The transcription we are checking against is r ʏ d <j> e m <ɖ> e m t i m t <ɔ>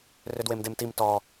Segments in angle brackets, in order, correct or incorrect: incorrect, incorrect, correct

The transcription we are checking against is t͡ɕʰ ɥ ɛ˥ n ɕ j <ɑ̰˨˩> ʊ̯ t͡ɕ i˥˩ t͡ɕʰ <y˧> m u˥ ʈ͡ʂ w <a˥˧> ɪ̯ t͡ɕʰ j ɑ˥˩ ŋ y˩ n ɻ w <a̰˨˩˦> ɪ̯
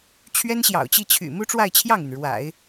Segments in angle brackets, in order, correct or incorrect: correct, incorrect, correct, correct

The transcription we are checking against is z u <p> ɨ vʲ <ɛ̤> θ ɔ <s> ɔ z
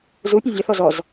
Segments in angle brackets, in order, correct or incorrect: incorrect, incorrect, incorrect

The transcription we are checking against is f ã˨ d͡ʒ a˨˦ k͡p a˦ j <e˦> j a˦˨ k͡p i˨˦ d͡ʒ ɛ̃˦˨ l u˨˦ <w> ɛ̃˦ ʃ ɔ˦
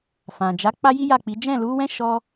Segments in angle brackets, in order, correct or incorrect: incorrect, correct

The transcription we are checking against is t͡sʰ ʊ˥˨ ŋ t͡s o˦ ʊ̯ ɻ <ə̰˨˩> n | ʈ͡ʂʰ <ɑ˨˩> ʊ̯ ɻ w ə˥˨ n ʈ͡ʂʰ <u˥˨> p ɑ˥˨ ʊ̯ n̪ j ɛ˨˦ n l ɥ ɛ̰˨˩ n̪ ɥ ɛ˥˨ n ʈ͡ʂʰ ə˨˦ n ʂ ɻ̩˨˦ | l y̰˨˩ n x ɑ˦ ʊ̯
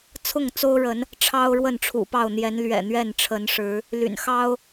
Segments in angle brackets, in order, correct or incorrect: incorrect, incorrect, incorrect

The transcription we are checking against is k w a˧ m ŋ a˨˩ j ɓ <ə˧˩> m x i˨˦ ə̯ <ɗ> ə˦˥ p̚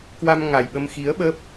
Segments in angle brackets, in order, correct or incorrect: incorrect, incorrect

